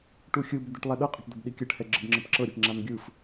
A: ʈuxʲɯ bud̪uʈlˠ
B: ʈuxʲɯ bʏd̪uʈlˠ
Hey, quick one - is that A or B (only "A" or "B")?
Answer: B